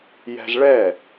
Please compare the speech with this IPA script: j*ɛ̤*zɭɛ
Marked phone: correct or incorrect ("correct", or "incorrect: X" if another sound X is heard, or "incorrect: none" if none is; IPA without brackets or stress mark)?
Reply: correct